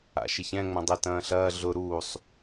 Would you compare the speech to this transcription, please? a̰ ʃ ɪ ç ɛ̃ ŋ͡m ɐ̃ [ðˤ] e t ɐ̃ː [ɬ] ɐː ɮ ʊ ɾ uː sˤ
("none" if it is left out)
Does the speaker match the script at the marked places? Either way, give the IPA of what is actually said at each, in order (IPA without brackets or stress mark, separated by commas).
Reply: dˤ, ɬ